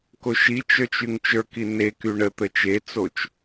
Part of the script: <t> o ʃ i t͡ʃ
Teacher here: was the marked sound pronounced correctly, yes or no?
no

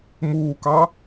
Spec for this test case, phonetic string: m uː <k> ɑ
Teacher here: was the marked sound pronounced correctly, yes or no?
yes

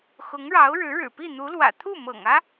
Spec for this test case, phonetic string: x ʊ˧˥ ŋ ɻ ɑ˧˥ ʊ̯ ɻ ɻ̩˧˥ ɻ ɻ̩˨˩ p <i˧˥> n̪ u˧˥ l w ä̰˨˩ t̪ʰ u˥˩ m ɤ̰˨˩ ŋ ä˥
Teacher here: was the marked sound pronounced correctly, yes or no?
no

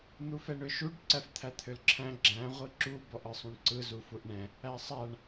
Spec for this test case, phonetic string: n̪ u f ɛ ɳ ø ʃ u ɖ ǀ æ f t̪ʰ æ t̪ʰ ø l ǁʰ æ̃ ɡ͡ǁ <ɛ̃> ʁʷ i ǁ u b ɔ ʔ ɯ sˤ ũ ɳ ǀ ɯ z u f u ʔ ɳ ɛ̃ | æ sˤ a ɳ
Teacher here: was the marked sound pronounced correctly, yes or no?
no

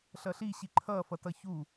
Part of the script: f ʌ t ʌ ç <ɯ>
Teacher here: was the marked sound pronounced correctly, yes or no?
no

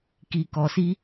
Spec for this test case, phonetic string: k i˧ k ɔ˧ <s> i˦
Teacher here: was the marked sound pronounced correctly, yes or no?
yes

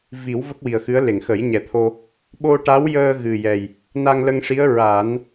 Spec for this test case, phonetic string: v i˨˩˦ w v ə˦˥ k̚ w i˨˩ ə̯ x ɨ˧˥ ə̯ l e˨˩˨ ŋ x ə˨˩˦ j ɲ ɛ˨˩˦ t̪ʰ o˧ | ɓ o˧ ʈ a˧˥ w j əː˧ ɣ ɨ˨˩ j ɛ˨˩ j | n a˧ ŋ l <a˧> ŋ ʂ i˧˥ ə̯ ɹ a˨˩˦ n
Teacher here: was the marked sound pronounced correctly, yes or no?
no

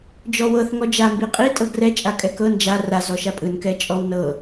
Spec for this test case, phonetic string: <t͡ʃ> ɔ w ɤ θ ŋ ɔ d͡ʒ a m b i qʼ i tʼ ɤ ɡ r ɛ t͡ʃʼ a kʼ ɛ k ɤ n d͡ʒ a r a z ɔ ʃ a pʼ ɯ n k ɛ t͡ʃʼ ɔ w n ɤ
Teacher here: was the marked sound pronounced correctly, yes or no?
no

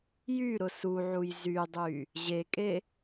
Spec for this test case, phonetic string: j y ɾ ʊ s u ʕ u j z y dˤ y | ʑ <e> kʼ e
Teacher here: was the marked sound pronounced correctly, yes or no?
yes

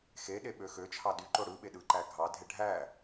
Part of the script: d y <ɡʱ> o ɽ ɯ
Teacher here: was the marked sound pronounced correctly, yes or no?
no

